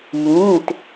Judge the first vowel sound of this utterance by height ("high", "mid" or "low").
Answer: high